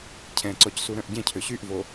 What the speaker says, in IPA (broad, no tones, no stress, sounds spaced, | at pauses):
cʰ ɛ̃ ǀ ɔ c s u ɾ œ̃ ʔ ɟ ɛ̃ cʰ ø ɕ y ʔ v o